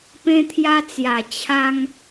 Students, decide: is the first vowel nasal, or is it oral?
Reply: nasal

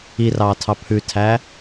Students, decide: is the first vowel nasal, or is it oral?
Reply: oral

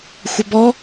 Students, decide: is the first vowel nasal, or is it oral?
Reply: oral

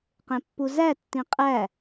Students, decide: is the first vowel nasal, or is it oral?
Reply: nasal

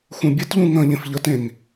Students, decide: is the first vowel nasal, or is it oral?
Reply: nasal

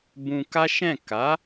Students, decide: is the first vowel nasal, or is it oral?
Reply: nasal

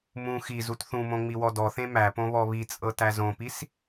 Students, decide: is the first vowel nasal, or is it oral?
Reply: nasal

